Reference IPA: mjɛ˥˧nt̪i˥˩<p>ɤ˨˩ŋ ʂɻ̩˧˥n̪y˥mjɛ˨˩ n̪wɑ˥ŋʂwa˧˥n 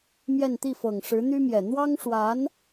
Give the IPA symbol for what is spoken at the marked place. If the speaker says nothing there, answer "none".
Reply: f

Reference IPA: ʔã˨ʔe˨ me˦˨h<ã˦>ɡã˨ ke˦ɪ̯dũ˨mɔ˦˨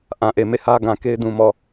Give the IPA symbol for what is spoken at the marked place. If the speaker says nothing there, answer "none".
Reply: ä˦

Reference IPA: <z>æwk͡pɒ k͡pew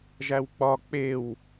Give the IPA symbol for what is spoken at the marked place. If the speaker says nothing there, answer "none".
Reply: ʒ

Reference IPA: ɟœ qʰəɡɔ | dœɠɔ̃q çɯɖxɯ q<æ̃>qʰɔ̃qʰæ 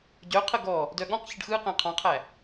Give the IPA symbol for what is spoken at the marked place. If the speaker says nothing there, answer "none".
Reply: æ̃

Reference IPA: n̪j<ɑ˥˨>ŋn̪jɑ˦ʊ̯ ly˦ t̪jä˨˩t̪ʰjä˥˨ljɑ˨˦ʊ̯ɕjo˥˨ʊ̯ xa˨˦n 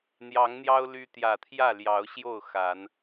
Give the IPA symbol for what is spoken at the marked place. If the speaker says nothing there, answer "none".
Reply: ɑ˨˦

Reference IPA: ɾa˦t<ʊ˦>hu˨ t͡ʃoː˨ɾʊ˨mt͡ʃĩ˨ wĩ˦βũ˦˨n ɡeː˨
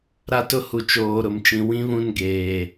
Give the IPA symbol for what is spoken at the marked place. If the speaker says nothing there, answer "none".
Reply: ʊ˦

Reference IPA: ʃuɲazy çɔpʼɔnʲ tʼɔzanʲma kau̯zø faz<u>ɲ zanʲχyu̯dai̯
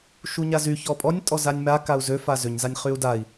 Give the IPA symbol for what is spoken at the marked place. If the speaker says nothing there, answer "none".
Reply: ø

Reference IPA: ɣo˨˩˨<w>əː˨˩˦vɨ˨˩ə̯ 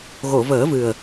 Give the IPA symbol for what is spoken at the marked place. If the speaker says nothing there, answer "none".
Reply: v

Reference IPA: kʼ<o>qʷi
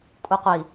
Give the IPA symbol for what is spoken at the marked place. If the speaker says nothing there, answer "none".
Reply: u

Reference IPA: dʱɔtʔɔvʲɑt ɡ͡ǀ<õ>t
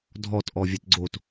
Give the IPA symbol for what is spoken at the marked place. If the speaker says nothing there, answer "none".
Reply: o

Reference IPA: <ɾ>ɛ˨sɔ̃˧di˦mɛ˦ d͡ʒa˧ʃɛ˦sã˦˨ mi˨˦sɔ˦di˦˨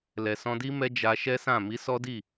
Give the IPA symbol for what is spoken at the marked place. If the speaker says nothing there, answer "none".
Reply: l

